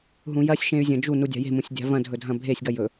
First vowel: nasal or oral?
nasal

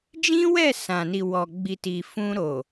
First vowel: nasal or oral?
nasal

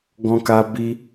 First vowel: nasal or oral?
nasal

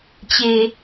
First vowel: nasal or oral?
oral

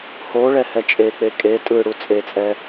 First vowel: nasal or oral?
oral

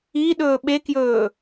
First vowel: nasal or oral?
oral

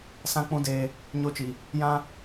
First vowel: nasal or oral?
nasal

